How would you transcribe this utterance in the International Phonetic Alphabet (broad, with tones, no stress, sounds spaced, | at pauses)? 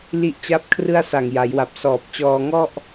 l i˦˥ ʔ t͡ɕ a˥˩ p̚ kʰ r ɯ˥˩ a̯ s a˨˩ ŋ j a˩˦ j w a˨˩ p̚ s ɔː˨˩ p̚ t͡ɕ ɔː˧ ŋ ɔ˥˩ ʔ